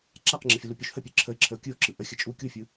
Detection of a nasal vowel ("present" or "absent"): absent